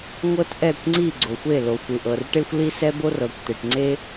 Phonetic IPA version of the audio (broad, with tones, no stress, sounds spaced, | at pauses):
ŋʷ ɤ˥ t ʔ ɛ˥˩ kʷ ŋ͡ǀ i˥˩ ɡ͡ǀ o˨ xʷ e˥˩ l o˨ xʷ ɯ˨ ʔ ɤ˨ r ʈ e˥ xʷ l i˥ s ɛ˥ b o˥ r ɤ˨ kʷ t̪ e˨ ʈ ŋ͡ǀ e˥